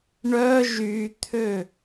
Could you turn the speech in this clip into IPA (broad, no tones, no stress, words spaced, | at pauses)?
ɳœ ʒyt̪ʰø